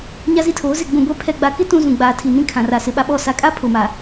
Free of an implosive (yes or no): no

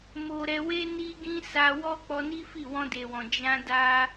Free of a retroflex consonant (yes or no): yes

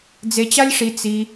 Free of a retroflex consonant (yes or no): no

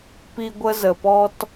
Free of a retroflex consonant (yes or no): yes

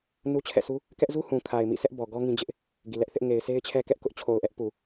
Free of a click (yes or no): yes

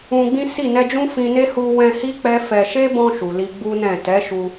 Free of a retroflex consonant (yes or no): yes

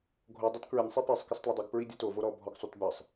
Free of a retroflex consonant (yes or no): yes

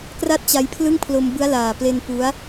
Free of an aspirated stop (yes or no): no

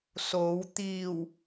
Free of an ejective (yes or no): yes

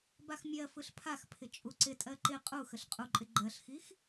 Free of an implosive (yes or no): yes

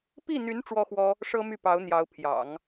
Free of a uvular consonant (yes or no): yes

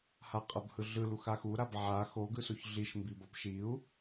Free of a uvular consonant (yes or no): no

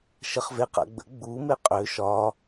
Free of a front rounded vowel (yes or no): no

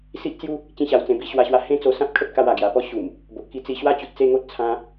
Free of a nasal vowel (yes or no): no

